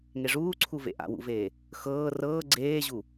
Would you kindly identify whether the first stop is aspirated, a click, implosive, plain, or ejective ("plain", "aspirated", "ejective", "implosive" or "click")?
click